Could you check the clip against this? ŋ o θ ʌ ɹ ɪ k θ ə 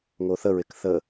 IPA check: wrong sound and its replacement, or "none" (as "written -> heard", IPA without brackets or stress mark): ʌ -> ə